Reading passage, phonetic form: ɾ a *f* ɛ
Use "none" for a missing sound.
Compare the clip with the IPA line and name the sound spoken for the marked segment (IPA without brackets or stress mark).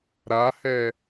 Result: h